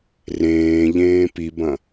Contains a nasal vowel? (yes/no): yes